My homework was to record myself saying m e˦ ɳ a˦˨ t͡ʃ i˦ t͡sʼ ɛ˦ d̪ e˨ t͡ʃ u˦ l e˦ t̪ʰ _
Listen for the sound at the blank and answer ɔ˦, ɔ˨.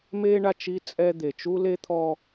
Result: ɔ˦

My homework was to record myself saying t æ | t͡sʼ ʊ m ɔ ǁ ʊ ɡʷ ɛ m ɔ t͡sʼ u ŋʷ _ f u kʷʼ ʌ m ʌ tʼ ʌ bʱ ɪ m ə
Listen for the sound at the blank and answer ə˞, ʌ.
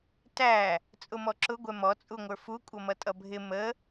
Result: ə˞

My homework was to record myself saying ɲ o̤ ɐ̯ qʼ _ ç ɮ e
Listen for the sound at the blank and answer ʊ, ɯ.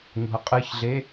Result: ɯ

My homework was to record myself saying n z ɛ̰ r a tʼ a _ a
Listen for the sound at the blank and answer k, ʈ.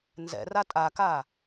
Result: k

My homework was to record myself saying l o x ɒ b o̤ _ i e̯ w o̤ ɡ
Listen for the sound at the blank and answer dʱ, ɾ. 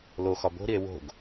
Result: ɾ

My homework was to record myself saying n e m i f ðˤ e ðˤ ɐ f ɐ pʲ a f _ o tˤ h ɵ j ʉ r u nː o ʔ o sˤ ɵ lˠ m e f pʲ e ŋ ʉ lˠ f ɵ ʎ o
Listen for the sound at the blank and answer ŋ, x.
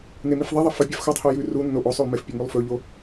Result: x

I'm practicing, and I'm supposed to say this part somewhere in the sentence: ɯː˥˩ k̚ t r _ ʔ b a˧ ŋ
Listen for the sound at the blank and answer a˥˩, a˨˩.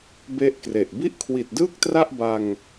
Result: a˥˩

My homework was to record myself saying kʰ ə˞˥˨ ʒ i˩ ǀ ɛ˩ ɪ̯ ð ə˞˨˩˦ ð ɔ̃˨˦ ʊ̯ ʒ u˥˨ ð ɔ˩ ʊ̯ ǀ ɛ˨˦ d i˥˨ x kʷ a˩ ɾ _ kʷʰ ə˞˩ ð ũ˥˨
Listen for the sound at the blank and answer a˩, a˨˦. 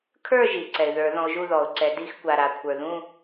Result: a˩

